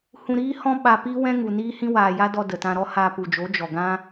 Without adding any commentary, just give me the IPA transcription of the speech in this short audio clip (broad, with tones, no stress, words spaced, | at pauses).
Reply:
hũ˧ɾiː˦hɔ̃˦ ɓa˧ piː˦wɛ̃˦ ŋu˨niː˦hĩ˦ waː˨ja˦dɔ˧ də˨tã˧ɾɔ˦ haː˧pu˨d͡ʒo˨˦ d͡ʒɔ˨ɡã˦